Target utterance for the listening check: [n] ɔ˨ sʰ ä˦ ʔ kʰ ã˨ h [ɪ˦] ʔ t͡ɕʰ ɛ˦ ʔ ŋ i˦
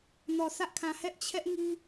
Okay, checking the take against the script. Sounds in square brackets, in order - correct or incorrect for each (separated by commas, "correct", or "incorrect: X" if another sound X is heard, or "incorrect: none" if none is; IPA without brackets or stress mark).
correct, incorrect: ɛ˦